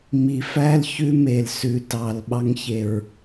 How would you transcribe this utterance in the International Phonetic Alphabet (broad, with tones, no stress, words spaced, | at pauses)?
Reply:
mi˨fæ˦l çʉ˦me˨l sʉ˨tɑ˨l ɓɑ˧ŋçe˨ɹ